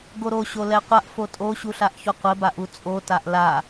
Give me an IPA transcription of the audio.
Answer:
ɡ o ɾ o ɕ o l ɛ qʷ a ʔ f o tʼ o ɕ u ɬ a ʔ ç o qʷ ɘ b a ʔ u t͡sʼ o t a ʔ l a

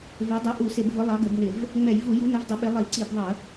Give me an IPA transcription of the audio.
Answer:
v ɛ˨˥ dˤ u˨˥ ʔ u˧˩˧ s ɪ˧˩˧ b v ʊ˨˥ lˠ ɑ˨˥ ɡ ə˧˩˧ b n ɪ˧˩˧ v | ŋ͡m ɛ˧˩˧ j v u˧˩˧ j u˨˥ n ʊ˨˥ v dˤ ə˨˥ ɓ ɪ˨˥ lˠ i˧˩˧ ǀ i˧˩˧ b ðˤ ə˧˩˧

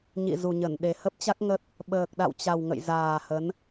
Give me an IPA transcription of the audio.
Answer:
ɲ ḭ˧˨ z u˨˩ ɲ ə˧˩ n ɗ e˨˩ h ə˦˥ p̚ t͡ɕ a˦˥ k̚ ŋ ə˦˥ t̚ | ɓ əː˨˩ k̚ ɗ a̰˧˨ w t͡ɕ a˨˩ w ŋ ə̰˧˨ j z aː˨˩ h ə˨˦ n

